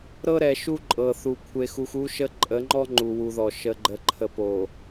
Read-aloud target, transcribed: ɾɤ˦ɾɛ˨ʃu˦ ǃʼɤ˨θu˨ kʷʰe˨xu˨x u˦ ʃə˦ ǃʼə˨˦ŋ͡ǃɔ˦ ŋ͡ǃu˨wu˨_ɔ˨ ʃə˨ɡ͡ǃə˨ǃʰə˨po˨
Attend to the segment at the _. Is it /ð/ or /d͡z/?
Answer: ð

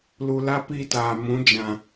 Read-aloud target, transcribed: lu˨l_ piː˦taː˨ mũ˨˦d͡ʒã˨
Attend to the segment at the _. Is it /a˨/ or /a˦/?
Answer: a˦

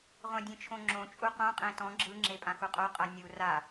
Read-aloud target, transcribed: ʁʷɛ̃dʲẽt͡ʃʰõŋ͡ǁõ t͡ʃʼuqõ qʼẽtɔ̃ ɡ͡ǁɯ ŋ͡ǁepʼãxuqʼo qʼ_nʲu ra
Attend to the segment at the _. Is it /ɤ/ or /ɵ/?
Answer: ɤ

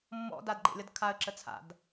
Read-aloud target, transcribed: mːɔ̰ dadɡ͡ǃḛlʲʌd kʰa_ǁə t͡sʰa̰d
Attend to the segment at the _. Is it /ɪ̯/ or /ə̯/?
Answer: ə̯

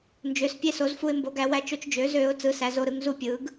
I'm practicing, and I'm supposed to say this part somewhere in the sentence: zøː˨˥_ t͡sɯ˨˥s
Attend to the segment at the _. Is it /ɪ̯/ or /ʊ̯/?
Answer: ʊ̯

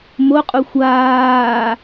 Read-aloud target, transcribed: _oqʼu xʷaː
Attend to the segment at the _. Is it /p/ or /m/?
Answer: m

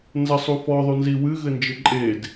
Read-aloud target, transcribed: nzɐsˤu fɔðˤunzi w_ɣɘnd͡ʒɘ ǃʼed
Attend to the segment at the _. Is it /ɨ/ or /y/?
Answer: ɨ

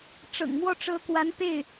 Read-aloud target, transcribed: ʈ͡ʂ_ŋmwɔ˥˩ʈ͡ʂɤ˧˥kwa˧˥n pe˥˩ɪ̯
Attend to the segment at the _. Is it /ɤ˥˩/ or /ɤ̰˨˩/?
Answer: ɤ̰˨˩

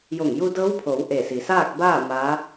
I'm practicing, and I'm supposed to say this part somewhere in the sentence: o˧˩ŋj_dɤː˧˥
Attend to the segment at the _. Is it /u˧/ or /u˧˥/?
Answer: u˧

